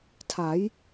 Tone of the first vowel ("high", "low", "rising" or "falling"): rising